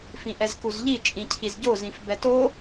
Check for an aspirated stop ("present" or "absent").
present